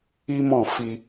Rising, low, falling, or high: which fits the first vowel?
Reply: high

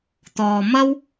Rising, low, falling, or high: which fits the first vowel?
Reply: low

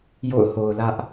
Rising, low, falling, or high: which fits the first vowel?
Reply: falling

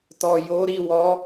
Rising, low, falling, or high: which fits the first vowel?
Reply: low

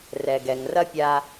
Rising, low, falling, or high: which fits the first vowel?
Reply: low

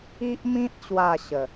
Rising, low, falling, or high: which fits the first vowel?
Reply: high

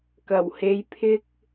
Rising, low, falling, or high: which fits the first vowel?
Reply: low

